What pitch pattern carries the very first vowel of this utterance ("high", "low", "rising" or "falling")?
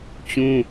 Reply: high